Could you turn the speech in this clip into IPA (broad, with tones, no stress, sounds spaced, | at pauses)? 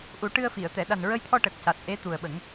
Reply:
ʔ u˨˩˦ ʈ ɨ˧ ə̯ f i˨˩˨ ə̯ t̪ ɛ˨˩˨ ɗ a˨˩ n ɹ ə˧ j t̪ʰ ɔ˧ ʈ ə˨˩ k̚ c a˨˩ t̚ ʔ e˧˥ t̪ u˨˩ ə̯ ɓ ə˨˩˦ ŋ